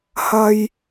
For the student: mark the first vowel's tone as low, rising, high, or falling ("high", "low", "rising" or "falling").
high